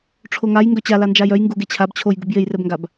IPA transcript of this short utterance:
ʈ͡ʂʰ o ŋ a j ŋ ɡ œ t͡ɕ a l a n d͡ʒ a j œ j ŋ ɡ u ɡ e t͡ɕʰ a b t͡ɕʰ o j ɡ u b j e j r ɛ b ŋ ɡ a b

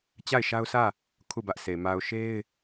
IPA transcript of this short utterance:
t͡ɕ a˦˨ ɪ̯ ʃ a˦ ʊ̯ sʰ ä˦˨ | kʰ u˦˨ b ä˦ ʔ s e˨ m a˨ ʊ̯ ʃ e˦ ɪ̯

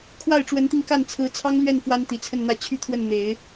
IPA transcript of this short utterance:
kʰ w a˥˩ ɪ̯ ʈ͡ʂ w ə˧˥ n t̪ i˧ ŋ k a˥˩ n t͡sʰ ɹ̩˧˥ t͡sʰ ɑ˥ ŋ l ɥ ɛ˥˩ n f w a˥ n t̪ i˨˩ t͡sʰ ə˥˧ n n̪ ä˥˧ t͡ɕʰ y˥˧ t̪ʰ w ə˥˩ n n̪ e˨˩˦ ɪ̯

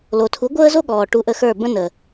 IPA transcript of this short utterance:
l o˨ tʰ u˨˦ ɡʷ əː˦ z o˦ ɠ ɔː˨ ʈ u˧ ʔ ə˧ x ə˞˦˨ b ə̃˦ n ə˨

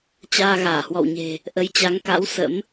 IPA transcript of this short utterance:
t͡ɕ aː˧ ɣ aː˧˩ h w ɔ̰˧˨ w ɲ e̤˨˩ | ʔ ə˨˦ j t͡ɕ a˨˦ ŋ k a̰˧˥ w s ə̰˧˥ m

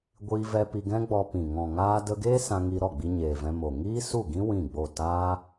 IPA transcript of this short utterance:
ɡʷ iː˧ v ɛ˧ p i˧ ɡ ɛ̃˦ ɡ͡b ɔ˧ p ĩ˨ ŋ ɔ̃˨ ŋ aː˧ d ə˧ ɡ eː˦ s ã˧ ŋ i˧ ɾ ɔ˦˨ ɡ͡b i˧ ɲ eː˨ v ɛ̃˧ m o˨ ŋ iː˦ s u˦˨ ɡ ĩ˦ w ĩ˦˨ ɡ͡b o˦˨ t aː˦

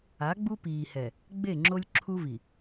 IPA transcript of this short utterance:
a˨˦ ɡ͡b u˦ p iː˨ h ɛ˨ | ɡ͡b e˦˨ ŋ͡ǁ o˦ lʲ ǁʰ u˦ v i˨

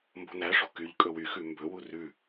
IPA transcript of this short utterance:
m b o̤ n æ ʂ o̤ k y ʎ kʼ ɵ w y x ʉ m b ɵ w u r ʉ

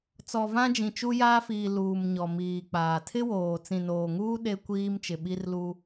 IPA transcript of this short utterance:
t͡s ɔ˨ v ã˦ d͡ʒ ĩ˨ t͡ʃ u˦ j aː˦ f iː˨ l uː˨ m ɲ ɔ˨ m iː˨ k͡p aː˨ tʰ ɪ˦ w oː˨ t͡s ĩ˨ n oː˨ ŋ uː˦ ɗ e˦ kʷ iː˦ m t͡ʃ ɪ˨ ɓ i˦ r l u˦

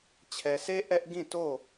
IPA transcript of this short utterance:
t͡ɕʰ ɛ˨ sʰ e˦ ʔ ɛ˦ ʔ ɡ ĩ˦˨ t o˦˨

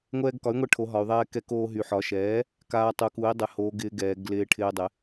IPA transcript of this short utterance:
ŋʷ ɛː˧ ɡ k ɒ˩˥ y̯ ŋʷ ɛ˧ ʈʰ o˩˧ ɦ ɒ˩˧ y̯ ðˤ ɛː˧ k ɛ˧ k oː˧ ɦ y˩˧ ħ ɒ˩˥ ʃ ɛː˩˥ | k aː˧ tˤ u˩˥ k u˩˥ i̯ dˤ ɪ˩˥ h oː˩˧ ɡ ɪː˧ ɡ ɛː˩˧ ɡ l ɪː˧ ʈʰ ɪː˧ dˤ ɪ˩˥

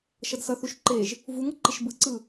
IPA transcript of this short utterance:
ʃ ʌ d s ʌ θ u ʃ ǃ e ʒ | v u ŋ ʌ ǃ i ʃ b ɯ ǀ ɯ

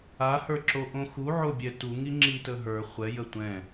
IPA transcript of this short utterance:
a h ə˞ ǁ o ʔ õ x u ʕ o bʲ ɛ t u ŋ i ŋ͡ǁ i t ə ɦ ə˞ χʷ ɛ j ə tʷ ɛ̃

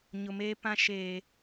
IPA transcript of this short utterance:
ɲ ʊ˨ m eː˦ p ã˦ ʃ eː˨

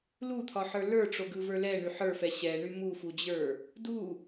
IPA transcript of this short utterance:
l u t̪ʰ ɒ ħ ə˞ l ə˞ ʈ͡ʂ o ɡ ɯ v ə˞ l ɛ ɳ y ħ ə˞ f ɛ ɕ ɛ ɳ y m u f u d͡ʑ ə˞ | d u

